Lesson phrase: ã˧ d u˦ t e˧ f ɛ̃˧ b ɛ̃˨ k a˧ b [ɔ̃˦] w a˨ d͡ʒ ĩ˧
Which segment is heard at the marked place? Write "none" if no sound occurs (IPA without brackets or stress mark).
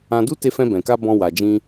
ɔ̃˧